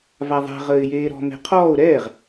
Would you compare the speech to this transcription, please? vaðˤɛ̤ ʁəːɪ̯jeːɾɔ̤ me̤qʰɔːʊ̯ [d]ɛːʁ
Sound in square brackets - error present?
yes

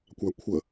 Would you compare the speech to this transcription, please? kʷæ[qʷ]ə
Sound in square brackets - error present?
yes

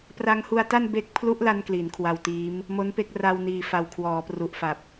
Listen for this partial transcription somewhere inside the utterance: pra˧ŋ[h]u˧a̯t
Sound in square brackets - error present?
no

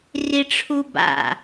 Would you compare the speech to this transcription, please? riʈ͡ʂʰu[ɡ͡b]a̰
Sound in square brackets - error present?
yes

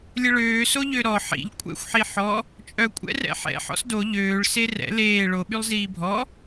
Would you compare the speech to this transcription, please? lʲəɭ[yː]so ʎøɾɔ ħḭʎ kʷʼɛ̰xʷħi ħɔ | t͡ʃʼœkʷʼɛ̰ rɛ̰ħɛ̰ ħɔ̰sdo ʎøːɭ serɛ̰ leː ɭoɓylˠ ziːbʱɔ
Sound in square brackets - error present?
yes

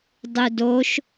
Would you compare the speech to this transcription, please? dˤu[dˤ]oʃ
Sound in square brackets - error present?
yes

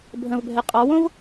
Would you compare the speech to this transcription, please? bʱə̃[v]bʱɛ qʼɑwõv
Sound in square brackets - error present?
no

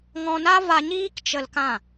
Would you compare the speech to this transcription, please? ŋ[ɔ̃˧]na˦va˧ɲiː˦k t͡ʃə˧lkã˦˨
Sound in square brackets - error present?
no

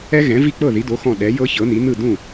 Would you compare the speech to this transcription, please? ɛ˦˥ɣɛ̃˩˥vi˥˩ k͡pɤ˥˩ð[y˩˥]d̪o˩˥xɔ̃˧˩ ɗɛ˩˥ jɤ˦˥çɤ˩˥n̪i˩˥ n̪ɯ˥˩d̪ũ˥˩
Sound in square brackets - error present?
yes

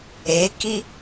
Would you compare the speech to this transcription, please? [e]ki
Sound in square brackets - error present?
no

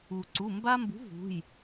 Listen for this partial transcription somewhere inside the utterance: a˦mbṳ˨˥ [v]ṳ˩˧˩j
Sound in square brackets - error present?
no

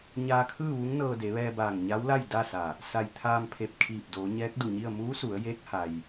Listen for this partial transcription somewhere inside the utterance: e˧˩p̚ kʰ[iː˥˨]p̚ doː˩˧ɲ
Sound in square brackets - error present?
yes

